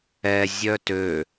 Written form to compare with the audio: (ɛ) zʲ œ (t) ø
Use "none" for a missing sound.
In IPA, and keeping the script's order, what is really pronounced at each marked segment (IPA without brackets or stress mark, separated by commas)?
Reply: ɛ, t